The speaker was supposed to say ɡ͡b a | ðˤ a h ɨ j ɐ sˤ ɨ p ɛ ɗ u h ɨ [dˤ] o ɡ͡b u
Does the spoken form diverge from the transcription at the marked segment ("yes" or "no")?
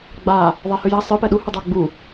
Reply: no